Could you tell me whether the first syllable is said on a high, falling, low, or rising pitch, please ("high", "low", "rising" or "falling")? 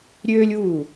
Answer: high